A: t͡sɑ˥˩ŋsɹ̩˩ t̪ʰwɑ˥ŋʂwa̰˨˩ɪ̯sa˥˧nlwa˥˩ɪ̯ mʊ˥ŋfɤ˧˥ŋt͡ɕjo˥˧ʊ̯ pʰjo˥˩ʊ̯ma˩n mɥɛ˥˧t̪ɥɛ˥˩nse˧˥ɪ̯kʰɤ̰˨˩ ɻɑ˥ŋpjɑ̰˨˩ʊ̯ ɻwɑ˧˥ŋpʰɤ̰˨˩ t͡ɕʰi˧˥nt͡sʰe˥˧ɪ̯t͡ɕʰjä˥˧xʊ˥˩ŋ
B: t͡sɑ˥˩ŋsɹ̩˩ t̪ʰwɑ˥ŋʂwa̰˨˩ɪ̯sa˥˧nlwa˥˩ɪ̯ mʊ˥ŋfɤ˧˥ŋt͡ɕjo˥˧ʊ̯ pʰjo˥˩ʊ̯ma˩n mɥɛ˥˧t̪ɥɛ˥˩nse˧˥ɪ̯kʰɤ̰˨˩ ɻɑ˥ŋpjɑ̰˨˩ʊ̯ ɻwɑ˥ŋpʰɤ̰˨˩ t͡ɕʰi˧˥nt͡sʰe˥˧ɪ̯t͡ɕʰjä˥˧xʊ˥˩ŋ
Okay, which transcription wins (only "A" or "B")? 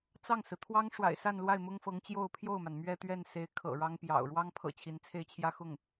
B